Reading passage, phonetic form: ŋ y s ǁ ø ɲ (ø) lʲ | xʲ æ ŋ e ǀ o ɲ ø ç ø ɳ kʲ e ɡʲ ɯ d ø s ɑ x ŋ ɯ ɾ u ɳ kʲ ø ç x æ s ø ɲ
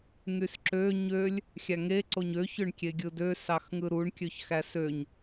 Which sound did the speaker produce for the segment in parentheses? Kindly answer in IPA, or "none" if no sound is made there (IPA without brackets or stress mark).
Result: ø